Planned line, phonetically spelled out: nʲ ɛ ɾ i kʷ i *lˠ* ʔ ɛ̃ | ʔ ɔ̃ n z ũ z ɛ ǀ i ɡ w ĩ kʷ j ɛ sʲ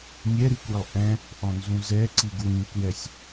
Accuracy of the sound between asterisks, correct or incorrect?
correct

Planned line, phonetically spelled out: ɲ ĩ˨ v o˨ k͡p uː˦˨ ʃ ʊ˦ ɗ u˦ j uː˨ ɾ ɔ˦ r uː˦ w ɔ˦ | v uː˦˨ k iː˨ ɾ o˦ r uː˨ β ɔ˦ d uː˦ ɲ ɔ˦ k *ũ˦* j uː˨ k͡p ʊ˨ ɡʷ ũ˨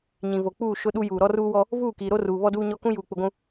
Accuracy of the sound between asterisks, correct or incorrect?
correct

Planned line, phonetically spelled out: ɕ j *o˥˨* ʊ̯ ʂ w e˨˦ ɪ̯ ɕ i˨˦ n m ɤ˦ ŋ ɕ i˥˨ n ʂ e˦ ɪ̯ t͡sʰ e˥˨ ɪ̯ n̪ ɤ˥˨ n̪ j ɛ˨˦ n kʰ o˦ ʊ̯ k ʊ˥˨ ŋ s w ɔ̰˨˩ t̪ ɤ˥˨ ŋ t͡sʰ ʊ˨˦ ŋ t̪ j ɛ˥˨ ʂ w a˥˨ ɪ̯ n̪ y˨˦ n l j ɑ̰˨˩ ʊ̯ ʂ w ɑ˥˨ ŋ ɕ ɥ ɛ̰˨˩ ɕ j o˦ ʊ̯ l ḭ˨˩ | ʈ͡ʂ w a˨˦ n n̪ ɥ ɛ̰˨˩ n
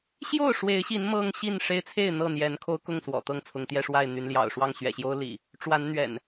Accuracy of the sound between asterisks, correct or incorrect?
correct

